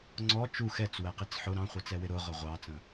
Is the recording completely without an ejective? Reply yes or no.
yes